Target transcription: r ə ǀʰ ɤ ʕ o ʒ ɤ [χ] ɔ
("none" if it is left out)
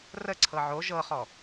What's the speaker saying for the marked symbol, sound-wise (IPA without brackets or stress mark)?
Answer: χ